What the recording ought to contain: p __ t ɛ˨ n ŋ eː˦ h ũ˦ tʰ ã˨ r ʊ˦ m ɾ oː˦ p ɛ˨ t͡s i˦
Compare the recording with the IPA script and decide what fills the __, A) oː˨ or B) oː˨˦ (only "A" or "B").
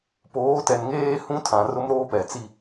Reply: B